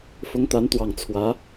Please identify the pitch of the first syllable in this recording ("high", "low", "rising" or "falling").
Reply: rising